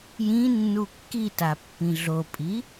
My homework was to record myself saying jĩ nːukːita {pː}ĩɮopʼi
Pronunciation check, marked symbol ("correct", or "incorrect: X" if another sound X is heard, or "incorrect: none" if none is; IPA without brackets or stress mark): correct